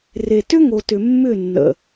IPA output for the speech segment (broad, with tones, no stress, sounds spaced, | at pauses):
r e˨ t ʏ˦ ŋ o˨ t ʏ˨ mː ʏ˦˨ nː ə̰˨